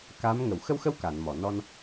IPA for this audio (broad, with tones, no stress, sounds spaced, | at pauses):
k a˧˥ m ŋ ə˨˩˨ w x ə˧ w x ə˧ w k a˨˩˨ n m ɔ˨˩˨ n ɔ˧ n